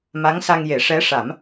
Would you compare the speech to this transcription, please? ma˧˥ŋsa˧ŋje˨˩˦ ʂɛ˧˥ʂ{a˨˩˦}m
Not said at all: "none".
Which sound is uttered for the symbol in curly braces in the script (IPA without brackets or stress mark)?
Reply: a˨˩˦